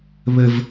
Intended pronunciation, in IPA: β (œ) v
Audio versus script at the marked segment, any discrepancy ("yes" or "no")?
yes